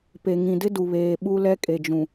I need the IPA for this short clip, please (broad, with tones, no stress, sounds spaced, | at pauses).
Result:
p e˨ ŋ ĩ˨ d ɪ˦ d u˨ β eː˨ ɓ u˦ l ɛ˦ kʼ e˨ d͡ʒ ũ˨